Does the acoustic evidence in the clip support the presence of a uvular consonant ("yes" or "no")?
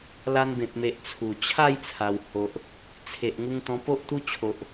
no